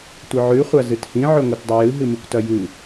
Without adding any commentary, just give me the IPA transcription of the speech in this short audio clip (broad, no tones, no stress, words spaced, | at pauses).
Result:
tʷɨʕʉ χʷazɨthĩ ʕɵŋʷɨtdˤɵjɨ ɦɨmɨkʷtɐjɨ